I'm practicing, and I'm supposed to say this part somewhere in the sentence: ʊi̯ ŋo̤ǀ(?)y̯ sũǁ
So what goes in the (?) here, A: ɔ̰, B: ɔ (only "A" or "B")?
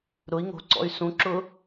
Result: A